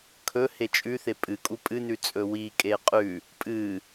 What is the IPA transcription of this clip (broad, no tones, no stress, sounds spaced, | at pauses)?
kʰ ɵ h e t͡ʃʼ ʉ θ e pʼ ɨ kʼ u pʼ ɨ n ʉ t͡sʼ ɵ w i kʼ e qʼ ʉ | pʼ ɨ